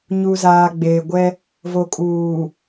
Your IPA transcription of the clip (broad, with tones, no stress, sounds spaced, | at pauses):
ɲ u˨ z aː˨ ɡ͡b eː˨ ɡʷ ɛ˦ | v o˨ kʼ uː˨